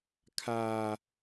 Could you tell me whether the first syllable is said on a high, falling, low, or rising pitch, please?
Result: low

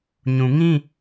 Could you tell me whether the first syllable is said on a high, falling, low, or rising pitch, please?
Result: low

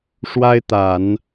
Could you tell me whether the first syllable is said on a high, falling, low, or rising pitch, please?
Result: high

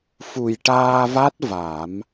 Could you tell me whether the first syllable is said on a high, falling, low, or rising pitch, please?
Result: low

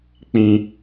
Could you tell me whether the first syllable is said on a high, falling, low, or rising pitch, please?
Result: low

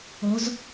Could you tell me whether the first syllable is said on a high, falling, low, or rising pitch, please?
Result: rising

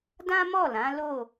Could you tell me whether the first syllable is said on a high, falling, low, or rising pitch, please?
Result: high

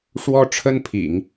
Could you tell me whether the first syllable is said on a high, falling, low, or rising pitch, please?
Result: high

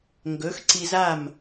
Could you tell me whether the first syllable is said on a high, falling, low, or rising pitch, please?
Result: rising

